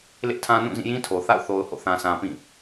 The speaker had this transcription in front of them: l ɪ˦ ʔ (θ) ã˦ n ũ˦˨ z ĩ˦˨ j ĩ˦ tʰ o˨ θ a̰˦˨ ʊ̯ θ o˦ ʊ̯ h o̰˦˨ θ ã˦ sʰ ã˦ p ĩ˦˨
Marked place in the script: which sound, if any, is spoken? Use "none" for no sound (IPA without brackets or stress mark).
tʰ